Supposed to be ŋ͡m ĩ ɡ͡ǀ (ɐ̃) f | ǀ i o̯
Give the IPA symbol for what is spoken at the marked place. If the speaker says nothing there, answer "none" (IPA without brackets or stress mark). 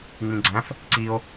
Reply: æ̃